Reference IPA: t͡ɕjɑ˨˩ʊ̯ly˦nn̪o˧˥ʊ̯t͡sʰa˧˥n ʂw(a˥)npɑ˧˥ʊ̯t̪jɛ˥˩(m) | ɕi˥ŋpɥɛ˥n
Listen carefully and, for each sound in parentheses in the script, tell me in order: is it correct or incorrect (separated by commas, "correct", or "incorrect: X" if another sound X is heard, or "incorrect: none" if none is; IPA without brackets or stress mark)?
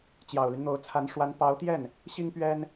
incorrect: a˧˥, incorrect: n